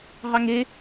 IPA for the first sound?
ɦ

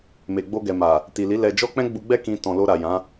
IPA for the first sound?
m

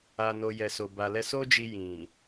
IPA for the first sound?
a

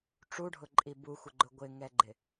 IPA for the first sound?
ʈ͡ʂ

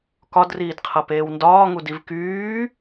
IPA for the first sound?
k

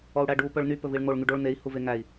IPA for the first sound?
ɔ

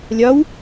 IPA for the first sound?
lʲ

